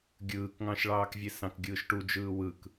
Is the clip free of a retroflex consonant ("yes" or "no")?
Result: no